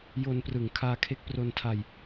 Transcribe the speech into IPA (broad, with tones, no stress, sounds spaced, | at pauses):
j o˧ n p r ɯ˨˩ ŋ kʰ aː˧ kʰ e˦˥ k̚ p r o˧ n tʰ a˧ j